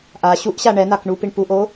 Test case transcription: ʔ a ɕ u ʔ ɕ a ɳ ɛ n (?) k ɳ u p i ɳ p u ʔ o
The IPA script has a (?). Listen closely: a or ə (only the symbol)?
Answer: a